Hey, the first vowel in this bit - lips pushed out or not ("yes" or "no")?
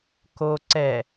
yes